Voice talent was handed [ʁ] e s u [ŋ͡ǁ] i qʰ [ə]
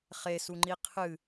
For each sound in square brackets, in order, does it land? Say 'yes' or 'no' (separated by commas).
no, no, no